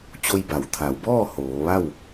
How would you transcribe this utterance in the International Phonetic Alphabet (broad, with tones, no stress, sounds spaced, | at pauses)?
t͡ɕ o˧ j b a˩˧ w t̪ʰ a˩˧ w b ɔː˥˨ h oː˩˧ ʋ a˥˨ w